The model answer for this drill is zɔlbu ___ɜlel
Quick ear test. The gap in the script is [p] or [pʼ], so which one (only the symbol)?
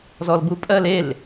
pʼ